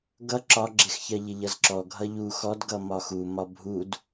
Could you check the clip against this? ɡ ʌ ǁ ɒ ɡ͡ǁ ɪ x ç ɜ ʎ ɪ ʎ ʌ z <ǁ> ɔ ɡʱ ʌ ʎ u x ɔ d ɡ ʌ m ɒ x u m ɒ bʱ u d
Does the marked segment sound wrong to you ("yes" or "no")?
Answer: no